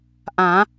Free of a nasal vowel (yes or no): no